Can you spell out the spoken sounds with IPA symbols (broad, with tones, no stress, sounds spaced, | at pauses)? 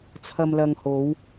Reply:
t͡sʰ ɐ˨ m l ɐ˨ ŋ h o˨˧ w